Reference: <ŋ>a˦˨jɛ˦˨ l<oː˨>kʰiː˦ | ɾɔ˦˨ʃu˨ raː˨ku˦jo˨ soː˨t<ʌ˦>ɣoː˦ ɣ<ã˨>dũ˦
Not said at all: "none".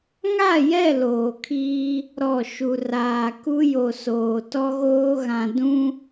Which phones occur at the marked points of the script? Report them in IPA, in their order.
ŋ, oː˨, ɔ˦, ã˨

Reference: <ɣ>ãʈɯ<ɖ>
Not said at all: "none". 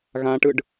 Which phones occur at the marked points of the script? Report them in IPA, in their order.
ɣ, ɖ

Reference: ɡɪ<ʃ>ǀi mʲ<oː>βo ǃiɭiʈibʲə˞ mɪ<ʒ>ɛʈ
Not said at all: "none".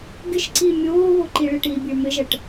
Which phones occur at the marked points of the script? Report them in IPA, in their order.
ʃ, oː, ʒ

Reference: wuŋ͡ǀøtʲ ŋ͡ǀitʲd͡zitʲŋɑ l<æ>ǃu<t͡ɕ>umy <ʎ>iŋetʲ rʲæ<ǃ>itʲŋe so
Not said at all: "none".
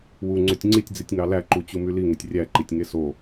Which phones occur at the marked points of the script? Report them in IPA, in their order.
æ, t͡ɕ, l, ǃ

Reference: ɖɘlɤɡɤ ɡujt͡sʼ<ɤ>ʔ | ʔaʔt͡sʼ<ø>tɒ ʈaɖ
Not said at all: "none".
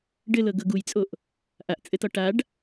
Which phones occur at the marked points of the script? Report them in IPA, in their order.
o, ɘ

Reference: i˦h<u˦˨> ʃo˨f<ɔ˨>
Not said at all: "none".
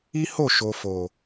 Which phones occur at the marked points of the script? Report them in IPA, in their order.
o˦˨, o˨

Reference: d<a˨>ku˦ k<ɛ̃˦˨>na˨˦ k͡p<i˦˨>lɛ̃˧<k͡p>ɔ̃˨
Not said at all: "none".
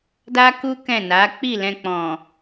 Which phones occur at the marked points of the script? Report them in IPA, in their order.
a˦, ɛ̃˦˨, i˦˨, k͡p

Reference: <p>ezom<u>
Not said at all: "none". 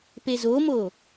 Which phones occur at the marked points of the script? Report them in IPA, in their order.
p, o

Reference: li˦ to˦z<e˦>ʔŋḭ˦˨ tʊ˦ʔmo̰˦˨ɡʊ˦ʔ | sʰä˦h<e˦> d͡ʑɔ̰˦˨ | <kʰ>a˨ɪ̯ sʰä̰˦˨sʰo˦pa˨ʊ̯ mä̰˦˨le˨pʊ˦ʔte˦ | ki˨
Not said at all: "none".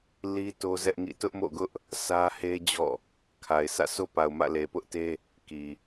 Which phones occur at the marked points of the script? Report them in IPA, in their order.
ɛ˦, e˦, kʰ

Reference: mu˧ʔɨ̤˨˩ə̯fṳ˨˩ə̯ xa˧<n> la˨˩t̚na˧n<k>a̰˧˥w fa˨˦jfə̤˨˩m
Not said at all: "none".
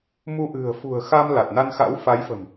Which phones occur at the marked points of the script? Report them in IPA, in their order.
m, x

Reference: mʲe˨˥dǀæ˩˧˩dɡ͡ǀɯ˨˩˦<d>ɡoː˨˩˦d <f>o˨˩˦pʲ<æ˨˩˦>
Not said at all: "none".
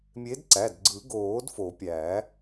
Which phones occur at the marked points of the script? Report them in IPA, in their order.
none, f, æ˨˩˦

